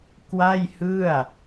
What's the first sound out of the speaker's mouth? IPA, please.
k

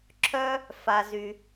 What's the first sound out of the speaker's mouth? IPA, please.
ǁʰ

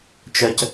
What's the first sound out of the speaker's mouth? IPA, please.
t͡ʃ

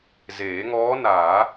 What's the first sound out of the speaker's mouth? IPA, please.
z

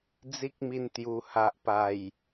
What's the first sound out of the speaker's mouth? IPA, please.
d͡z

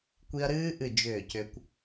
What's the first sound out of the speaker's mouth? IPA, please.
kʷ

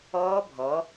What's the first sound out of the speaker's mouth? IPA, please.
ɔː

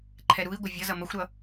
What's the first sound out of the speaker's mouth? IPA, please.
ǃʰ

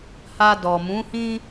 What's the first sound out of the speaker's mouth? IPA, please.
h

